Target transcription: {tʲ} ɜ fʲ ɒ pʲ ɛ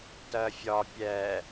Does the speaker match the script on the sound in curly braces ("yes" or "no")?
no